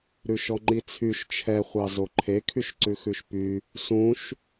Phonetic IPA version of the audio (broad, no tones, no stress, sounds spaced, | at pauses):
ɾ ʉ ʃ ɔ ŋ͡ǃ i t͡sʰ y ʃ t͡ʃʰ ɛ χʷ ɑ z o ǃʰ e kʰ y ʃ ǀ ʉ x ʉ ʃ p y | s ũ ʃ